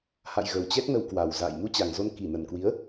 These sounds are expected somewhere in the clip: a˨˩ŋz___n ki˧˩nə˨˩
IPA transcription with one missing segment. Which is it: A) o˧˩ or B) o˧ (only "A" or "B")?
B